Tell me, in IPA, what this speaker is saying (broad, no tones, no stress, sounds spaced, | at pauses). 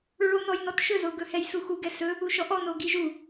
ɹ o n ɔ j n ɔ t ʃ ɵ z o ɡ ɵ h ɛ j s u x u ɡ ɛ s ɵ | u ʃ ɔ ʔ ɔ n o ɡ i ʒ u